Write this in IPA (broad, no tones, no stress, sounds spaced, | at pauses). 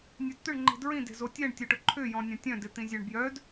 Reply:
nʲ œ d t̪ ʏ ɳ ŋ͡ǃ i̤ d ɹ ĩ d e̤ z o tʲ ɛ ɳ tʲ o ʈ ʊ ǃʰ ʏ j ɔ̃ nʲ ɐ̃ tʲ œ̃ d ɪ t̪ ĩ zʲ œ ɳ b j œ d